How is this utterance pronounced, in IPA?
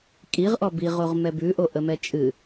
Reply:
kʼ i ʁ ʔ ɔ b i ʁ o ʁ m ɛ b ʉ ʔ o ʔ ə m ɛ t͡ʃʼ ɨ

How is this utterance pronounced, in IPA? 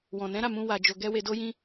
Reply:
w ɔ̃˨ n ɛ̃˨˦ ɾ a˦˨ m ũ˧ w a˧ d͡ʒ o˧ ɡ ɛ˦ w e˧ d o˦ j ĩ˦

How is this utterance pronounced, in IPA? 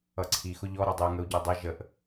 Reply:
ʌ ǀʰ i x ʊ ʎ ɔ ɾ ʌ dˤ ɪ u̯ ŋ ə u̯ ɟ ɜ dˤ ɛ ʒ ə ʔ

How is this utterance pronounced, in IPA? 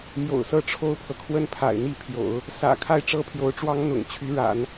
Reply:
m j o̰˨˩ ʊ̯ s ɤ˥ ʈ͡ʂʰ o˥ ʊ̯ pʰ ɤ˨ kʰ w ə˥˩ n pʰ a̰˨˩ ɪ̯ n̪ i˥˩ pʰ j o̰˨˩˦ ʊ̯ | s ä̰˨˩ kʰ a˥˩ ɪ̯ ʈ͡ʂ ɤ˥ pʰ j o˧˥ ʊ̯ ʈ͡ʂ w ɑ˥ ŋ n̪ ʊ̰˨˩ ŋ t͡ɕʰ y˧˥ ɻ a̰˨˩˦ n

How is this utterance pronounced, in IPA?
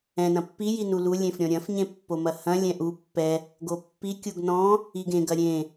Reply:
ɛ̃ n ɐ̃ pː i j i n u l u lʲ ẽ f ɾʲ ɔ̃ ɾʲ ɐ̃ f ɲ ẽ pː o m ɐ h ɐ̃ lʲ ɛ̃ ʔ u pː ɛ | ɡ o pː i kʲ u ɡ n ɔ̃ | i ɡ ẽ ɡ ɐ ɾʲ ẽ

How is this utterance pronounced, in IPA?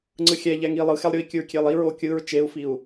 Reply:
ŋ͡ǀ ɯ xʲ ɛ ʎ ɛ ŋ i lˠ ɯ x ɛ lˠ ɾʲ o i̯ kʲ ɯ ɹ kʲ e lˠ i ɹ o kʲ ɯ ɹ t͡ʃ e u̯ f i u̯

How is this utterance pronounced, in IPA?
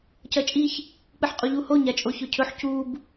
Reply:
c ɐ t͡ʃʼ i ç | k͡p ɨ ħ qʼ u ʎ u h o ɲ a t͡ʃʼ o ç ɵ cʰ ɵ ħ c u b

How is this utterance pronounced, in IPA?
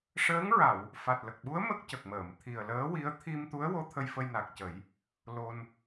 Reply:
ʂ əː˧˥ ŋ ɹ a˨˩˨ w | f a˨˩ t̚ l ə˨˩ k̚ ɓ u˧˥ ə̯ m ə˦˥ k̚ c ə˨˩ k̚ m əː˨˩˨ m t̪ʰ i˨˩ ə̯ l əː˧˥ w i˧˥ ə̯ t̪ʰ i˧ m t̪ u˧˥ ə̯ w o˧˥ t̪ʰ ə˧ j f ə˧ j n a˨˩ k̚ c ə˨˩˦ j | l o˧ n

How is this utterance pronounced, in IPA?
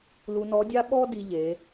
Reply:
l u˧ n ɔ˧˥ dʲ a˥ ɓ ɔ˥ d i˧ ʎ e˩˧

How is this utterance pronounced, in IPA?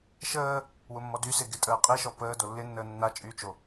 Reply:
ʃ əː | w ʊ mː ɔ d y s ɪ ɡ ɪ tʼ əː qʼ i ʃ ɔ p əː d o lː ɪ nː əː nː a t͡ʃʼ y t͡ʃ o

